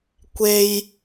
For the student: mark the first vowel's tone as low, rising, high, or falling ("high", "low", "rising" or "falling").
low